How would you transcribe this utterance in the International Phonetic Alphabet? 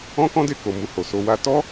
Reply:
ɔ̃˦ k ɔ̃˦ d e˧ k o˨ m u˧ h o˨ s o˧ w a˦ t ɔ˦

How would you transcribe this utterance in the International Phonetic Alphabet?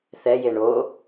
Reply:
θ ɛ j e ɳ o

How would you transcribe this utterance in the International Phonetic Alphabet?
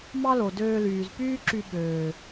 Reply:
m ɑ˦ l o˨ d øː˧ l yː˨ z p yː˦ ǁ y˧ ɓ øː˨

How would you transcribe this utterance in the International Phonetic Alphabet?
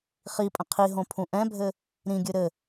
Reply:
χ i pʼ ə̃ qʰ i ɦ õ pʰ ũ ʔ ɛ̃ bʱ ɘ | ɾ ĩ ɡʲ ɨ ɾ ɘ

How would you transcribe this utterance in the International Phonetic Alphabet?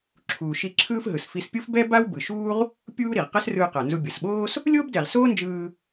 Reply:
ǁʰ uː˩ ʃ i˧ ǁʰ ɯː˥ f ɦ ɯ˩ s f i˧ s pʲ o˥ f b ɛ˥ b a˥ w b ɯ˩ ʃ uː˥ ʁ | pʲ uː˥ ɾ i˩ ʁ q ɛ˥ s r ɯː˧ q a˩ n z u˧ bʲ ʌ˩ s ɓ oː˥ s | lʲ oː˥ b d ɛ˩ ʁ s oː˥ n d͡ʒ ɯː˧

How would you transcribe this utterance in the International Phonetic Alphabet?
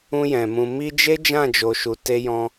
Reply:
ũ˧ j ɛ̃˨ m ũ˨ m i˧ d͡ʒ e˦ d͡ʒ ã˦˨ d͡ʒ o˨ ʃ u˨ t e˧ j ɔ̃˧

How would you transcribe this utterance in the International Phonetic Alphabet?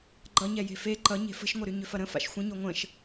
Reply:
ɡ͡ǃ ʌ ɲ ɛ j e̤ f e ǃ ʌ ɲ e̤ f ə̤ ʃ ŋʷ ʌ ɾ y ɲ ʏ f ɐ ɾ ə̃ f a̰ ʃ xʷ ə̃ ɲ o ŋʷ ə̃ ʃ

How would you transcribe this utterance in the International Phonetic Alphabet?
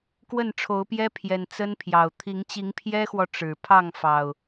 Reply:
k w ə˥˨ n ʈ͡ʂʰ o˨˦ ʊ̯ p j ɛ˦ pʰ j ɛ˨˩ n t͡s ə˦ n pʰ j ɑ˨˩ ʊ̯ t̪ʰ i˨˦ ŋ t͡ɕ i˨˦ ŋ pʰ j ɛ˦ x w ɔ˨ ʈ͡ʂ ɻ̩˨˩ pʰ ɑ˥˨ ŋ f ɑ˨˩ ʊ̯

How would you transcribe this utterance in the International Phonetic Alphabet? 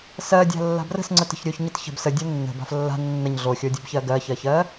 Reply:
s ɜ dʲ a̤ lː a̤ b r ə̤ s ŋ͡ǀ ə t ə̤ ç ɾʲ o ç ɲ ə t ç ə̤ b s ə dʲ o nː ə̤ b a̤ f lː a̤ nː ə ɲ ɮ o xʲ o dʲ ə b ç ɜ ɡ ɜ ç ɜ ç ɜ

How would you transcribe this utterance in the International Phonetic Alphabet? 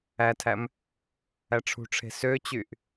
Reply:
æ tʰ æ m | æ ʈ͡ʂʰ ṳ ʈ͡ʂʰ e̤ s ø t͡ɕ y ʔ

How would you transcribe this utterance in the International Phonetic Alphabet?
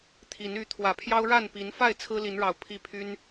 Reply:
t̪ʰ i˨˦ n y˨˦ t̪ʰ w ä˨˩ pʰ j ɑ˦ ʊ̯ ɻ a˥˨ n p i˨˦ n f a˥˨ ɪ̯ t͡sʰ ɹ̩˦ l i˨˦ n ɻ ɑ˨˩ ʊ̯ pʰ i˦ pʰ y˦ n

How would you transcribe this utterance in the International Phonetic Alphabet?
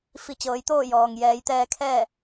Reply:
f i˧˩ t͡ɕ ɤː˩˧ j t̪ oː˥˨ j ɔː˩ ŋ j ɛː˩˧ j t̪ ɛː˧ kʰ ɛː˥˨

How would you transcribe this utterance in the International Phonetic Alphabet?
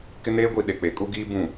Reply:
k ɪ˦ n eː˦ ɡʷ i˨ ɗ e˨ k͡p e˨˦ kʼ u˦ ɡ iː˦ b ũ˨

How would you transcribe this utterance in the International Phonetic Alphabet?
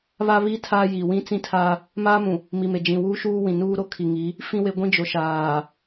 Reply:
β a˦ β i˦ tʰ a˦ j i˨ w ĩ˦ t͡s ĩ˦ tʰ a˦ | m aː˦ m ũ˨ | m i˨ m e˨ d͡ʒ ĩ˨ w uː˦ ʃ uː˦ w ĩ˨ n uː˦ ɾ o˦ kʰ i˨ ŋ i˨˦ | f ĩ˦ w e˦ ɡʷ ĩ˦ d͡ʒ o˨ ʃ aː˨

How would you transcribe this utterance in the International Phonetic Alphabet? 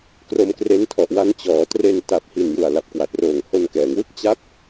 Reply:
k r o˧ m k r e˦˥ n tʰ ɔ˨˩ ʔ w a˦˥ n t͡ɕ ɔː˩˦ t r e˧ n t a˨˩ p̚ h i˨˩ n j u˨˩ a̯ l a˨˩ p̚ k w a˨˩ t̚ r oː˨˩ ŋ h o˧ n k ɛː˩˦ ŋ w ɯ˥˩ k̚ t͡ɕ a˦˥ p̚

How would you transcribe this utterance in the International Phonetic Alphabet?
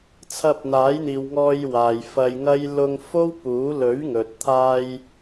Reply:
t͡sʰ ɐ˧ p̚ n̪ aː˨˥ j n̪ iː˨ w ŋ ɔː˧ j w aː˨ j f ɐ˧ j ŋ ɐ˥ j l ʊ˧ ŋ f o˥ w p uː˨˥ l ɵ˨˥ ɥ ŋ ɵ˨ t̚ t̪ʰ aː˧ j

